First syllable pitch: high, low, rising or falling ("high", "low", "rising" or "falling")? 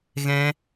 high